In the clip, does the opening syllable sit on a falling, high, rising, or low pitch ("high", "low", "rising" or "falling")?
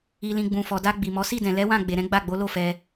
low